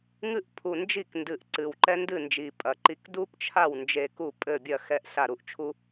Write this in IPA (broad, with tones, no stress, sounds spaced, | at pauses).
ŋ ɨ˥ ʔ pʰ u˨˩ n d͡ʒ i˥˩ k n d ɨ˨˩ ʔ ǀ ɨ˨˩ w ǃ ɛ˥ n d ɨ˥˩ n d͡ʒ i˨˩ pʼ ɐ˨˩ ǃ i˧ k d u˥ p t͡ʃʰ a˥˩ w n d͡ʒ e˧ k u˥˩ pʼ ɘ˥˩ bʲ ɐ˥˩ x ɛ˧ ʔ ɬ a˥˩ ɾ u˥ ʔ t͡ʃʰ u˥